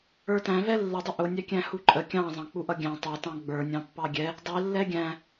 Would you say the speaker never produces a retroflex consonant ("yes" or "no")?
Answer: yes